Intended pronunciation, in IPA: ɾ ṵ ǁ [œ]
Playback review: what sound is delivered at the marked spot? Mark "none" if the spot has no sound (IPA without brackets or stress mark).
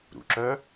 œ